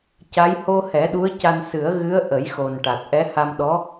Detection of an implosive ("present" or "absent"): present